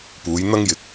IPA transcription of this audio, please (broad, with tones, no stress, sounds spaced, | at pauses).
p uː˨˧ j n̪ ɐ˥ ŋ j ɪ˧ k̚